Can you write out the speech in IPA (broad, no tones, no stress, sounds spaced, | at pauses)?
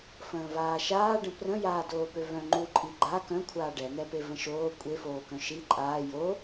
f ə̃ː v aː ʃ aː ɖ ə̃ p r ə̃ j aː d oː p ø v œ̃ ŋ͡ǃ u ǃʼ i ɡ͡ǃ a k œ̃ kʷʰ aː ɖ ɛ n̪ ɛ p e v ə̃ ʃ oː kʷʼ e f oː k œ̃ ʃ i ǃʼ aː j o